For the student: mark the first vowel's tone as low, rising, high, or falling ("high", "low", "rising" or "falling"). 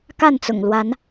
falling